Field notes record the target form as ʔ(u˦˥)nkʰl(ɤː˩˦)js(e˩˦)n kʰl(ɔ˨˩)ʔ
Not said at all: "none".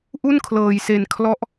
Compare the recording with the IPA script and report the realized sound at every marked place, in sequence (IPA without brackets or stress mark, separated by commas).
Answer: u˥˩, ɤː˧, e˧, ɔ˦˥